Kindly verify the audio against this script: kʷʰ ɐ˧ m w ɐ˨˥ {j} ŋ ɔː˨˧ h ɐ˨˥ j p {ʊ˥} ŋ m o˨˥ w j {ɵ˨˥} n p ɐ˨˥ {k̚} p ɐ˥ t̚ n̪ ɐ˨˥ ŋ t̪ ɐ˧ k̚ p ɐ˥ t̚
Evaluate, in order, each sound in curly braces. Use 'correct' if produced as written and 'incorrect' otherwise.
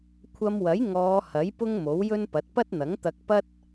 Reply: correct, correct, incorrect: ɵ˥, incorrect: t̚

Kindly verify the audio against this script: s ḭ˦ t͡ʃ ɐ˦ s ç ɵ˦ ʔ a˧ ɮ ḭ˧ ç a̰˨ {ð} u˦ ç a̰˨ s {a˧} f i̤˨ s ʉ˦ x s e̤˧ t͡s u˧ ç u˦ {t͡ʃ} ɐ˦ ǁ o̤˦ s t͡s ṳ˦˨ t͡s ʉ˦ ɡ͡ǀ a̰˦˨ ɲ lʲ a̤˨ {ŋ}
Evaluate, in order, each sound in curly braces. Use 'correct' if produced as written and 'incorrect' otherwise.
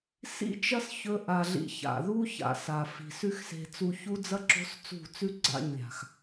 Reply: correct, incorrect: a˨, incorrect: d͡z, incorrect: x

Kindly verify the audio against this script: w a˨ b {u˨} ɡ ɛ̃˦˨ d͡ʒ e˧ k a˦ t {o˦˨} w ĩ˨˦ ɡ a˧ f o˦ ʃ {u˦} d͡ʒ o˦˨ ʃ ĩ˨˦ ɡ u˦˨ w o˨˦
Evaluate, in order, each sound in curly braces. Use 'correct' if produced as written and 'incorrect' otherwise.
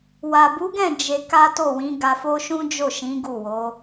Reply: incorrect: u˨˦, correct, incorrect: ũ˦

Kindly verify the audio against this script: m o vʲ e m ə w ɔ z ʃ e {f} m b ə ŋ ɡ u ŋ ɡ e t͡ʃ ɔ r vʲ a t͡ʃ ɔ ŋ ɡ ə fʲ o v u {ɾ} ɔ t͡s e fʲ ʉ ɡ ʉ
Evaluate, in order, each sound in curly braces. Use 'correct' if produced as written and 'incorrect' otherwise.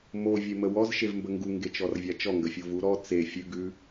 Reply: incorrect: v, correct

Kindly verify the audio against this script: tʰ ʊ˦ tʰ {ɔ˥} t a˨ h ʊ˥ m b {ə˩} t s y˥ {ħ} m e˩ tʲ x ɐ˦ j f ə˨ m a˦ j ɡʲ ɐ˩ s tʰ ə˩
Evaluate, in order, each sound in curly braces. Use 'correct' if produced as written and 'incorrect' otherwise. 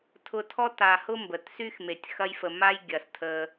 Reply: correct, correct, incorrect: x

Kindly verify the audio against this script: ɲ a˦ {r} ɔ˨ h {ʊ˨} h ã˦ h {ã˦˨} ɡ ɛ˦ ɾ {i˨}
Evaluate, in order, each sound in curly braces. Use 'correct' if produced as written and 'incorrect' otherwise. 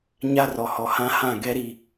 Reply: correct, incorrect: ɔ˨, correct, incorrect: i˦

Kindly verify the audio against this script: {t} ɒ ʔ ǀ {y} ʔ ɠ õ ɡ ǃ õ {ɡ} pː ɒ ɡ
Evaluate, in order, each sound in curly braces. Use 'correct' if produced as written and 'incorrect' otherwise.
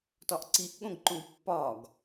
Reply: correct, incorrect: i, correct

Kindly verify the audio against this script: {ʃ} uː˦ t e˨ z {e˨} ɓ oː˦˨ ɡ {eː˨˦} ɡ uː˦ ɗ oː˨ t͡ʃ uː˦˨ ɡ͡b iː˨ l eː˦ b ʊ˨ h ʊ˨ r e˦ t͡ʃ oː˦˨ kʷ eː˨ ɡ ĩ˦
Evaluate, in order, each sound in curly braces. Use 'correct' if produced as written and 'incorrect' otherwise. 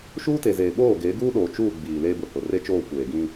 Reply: correct, incorrect: eː˨, correct

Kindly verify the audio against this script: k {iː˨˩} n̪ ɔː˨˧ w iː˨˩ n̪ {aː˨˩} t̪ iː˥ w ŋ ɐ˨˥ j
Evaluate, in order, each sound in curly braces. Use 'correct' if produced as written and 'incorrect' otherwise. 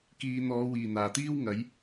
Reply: incorrect: iː˨, correct

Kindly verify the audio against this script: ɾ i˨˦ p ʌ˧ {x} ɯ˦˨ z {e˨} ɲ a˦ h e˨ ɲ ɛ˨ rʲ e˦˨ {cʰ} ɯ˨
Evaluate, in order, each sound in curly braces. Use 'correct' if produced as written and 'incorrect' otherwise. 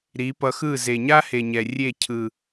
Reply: correct, correct, correct

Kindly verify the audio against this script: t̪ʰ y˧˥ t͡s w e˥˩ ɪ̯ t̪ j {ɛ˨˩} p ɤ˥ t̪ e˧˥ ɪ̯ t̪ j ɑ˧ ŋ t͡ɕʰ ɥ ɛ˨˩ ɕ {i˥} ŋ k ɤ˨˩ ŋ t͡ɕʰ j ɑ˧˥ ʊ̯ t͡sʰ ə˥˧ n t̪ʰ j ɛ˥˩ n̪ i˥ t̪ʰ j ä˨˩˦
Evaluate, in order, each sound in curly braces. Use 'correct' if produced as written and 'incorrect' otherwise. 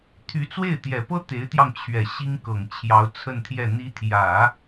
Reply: correct, correct

